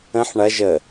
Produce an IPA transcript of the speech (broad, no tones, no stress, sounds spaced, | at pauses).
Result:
ə̃ ħ ɳ ɐ ʒ ə